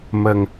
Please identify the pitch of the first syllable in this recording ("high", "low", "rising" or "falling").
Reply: low